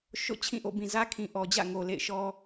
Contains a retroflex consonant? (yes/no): no